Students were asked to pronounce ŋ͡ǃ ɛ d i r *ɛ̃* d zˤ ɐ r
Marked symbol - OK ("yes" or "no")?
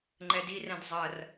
yes